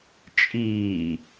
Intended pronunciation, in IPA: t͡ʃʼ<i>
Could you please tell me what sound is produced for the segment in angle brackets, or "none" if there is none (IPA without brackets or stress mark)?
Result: iː